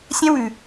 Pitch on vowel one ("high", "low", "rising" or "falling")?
high